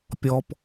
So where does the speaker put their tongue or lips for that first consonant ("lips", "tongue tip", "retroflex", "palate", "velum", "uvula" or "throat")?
lips